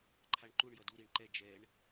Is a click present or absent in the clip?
present